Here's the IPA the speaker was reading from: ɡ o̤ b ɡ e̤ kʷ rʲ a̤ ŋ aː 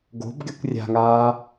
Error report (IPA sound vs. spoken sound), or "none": e̤ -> e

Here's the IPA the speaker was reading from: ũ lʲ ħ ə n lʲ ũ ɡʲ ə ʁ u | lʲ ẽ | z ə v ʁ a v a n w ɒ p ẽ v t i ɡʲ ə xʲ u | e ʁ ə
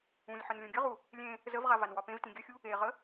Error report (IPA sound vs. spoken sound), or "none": i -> ĩ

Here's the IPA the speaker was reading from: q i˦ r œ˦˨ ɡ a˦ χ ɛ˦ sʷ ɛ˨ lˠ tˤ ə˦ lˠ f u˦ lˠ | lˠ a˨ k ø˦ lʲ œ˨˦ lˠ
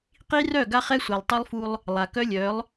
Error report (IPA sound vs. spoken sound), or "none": ø˦ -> œ˦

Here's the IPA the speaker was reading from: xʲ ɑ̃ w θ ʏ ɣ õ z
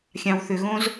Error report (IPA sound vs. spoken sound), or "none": none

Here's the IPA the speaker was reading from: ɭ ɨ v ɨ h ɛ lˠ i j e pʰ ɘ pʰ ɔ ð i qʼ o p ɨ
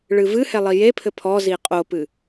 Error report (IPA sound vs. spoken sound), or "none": ð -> z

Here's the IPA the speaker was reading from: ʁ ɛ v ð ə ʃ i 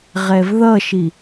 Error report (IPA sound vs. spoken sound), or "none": ə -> ʌ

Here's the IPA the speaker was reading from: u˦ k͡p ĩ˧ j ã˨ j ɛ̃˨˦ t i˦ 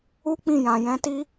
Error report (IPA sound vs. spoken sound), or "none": none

